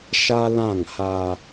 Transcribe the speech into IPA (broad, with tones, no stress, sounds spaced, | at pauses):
ʃ a˦ l ã˦˨ ŋ h a˦